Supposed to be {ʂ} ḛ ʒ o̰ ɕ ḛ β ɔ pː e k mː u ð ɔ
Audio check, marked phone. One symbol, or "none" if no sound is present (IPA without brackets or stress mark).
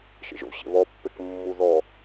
ʃ